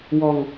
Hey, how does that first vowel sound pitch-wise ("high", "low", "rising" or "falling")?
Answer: low